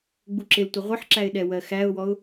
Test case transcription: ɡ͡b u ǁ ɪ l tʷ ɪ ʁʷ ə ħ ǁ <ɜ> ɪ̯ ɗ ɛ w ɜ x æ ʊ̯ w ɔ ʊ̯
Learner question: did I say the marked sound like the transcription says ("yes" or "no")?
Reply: no